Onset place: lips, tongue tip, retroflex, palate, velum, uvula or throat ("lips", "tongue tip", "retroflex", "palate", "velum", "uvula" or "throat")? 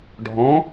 retroflex